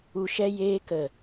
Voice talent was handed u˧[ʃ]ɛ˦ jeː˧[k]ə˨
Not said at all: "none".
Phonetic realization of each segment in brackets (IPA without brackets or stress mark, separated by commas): ʃ, k